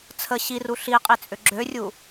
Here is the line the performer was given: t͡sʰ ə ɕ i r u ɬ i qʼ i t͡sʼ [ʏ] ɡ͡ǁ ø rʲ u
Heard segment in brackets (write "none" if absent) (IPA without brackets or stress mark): ʏ